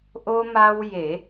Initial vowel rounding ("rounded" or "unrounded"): rounded